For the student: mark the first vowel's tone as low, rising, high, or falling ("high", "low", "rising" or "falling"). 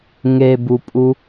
low